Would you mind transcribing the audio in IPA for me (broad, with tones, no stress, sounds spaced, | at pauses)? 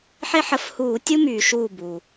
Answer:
ħ e˦ ħ ə˧˩˧ f h uː˧˩˧ tʲ u˦ m yː˩ ʃ uː˧˩ b uː˩